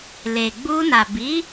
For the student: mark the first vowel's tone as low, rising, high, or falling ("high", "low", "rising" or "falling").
low